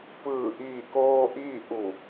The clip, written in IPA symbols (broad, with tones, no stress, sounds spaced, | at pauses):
p ɯː˧˩ ʔ iː˧˩ k oː˧ ʔ iː˥˨ ʔ u˧˩